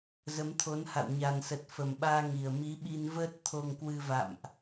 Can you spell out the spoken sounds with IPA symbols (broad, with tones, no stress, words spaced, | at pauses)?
zə˨˦mt̪ʰo˨˦nha̰˧˨w ɲa˨˩nsə˨˩t̚ fə˨˩mɓaː˧ŋi˨˩ə̯ mi˨˦ɓi˧nvəː˦˥t̚ t̪ʰo˧ŋkwɨ˧ va̰˧˨mʔ